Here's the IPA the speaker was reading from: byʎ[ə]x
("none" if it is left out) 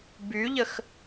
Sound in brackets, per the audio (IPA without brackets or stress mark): ə